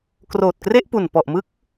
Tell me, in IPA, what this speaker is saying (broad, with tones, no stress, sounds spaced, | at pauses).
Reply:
k r oː˨˩ t̚ k r e˥˩ ʔ p u˨˩ n p ɔ˨˩ ʔ m ɯ˦˥ k̚